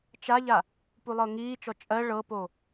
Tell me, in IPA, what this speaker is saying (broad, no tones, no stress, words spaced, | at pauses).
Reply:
t͡ʃaʎa | pulˠɤŋiːt͡ʃɔ t͡ʃʼɜ ɭɤpo